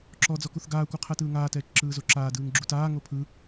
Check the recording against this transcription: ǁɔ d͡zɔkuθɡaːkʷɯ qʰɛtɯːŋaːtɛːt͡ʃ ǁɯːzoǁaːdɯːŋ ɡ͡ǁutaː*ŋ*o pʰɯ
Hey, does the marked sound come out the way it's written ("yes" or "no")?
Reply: yes